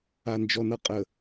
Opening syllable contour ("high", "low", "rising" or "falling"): low